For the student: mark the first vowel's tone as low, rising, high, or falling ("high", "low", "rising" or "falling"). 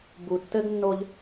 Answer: low